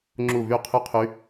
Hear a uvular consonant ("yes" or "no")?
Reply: yes